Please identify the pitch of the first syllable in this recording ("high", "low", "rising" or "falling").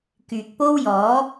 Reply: low